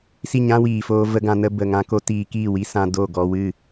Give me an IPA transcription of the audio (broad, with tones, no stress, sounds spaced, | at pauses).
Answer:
s i˦˨ ɲ ã˦ w iː˨ f oː˧ v ə˧ ɡ ã˧ n ə˧ b ə˨ ŋ ã˧ k o˦ t iː˧ k iː˦˨ w i˦ s ã˧ d o˦˨ ɡ ɔ˧ w ɨ˦˨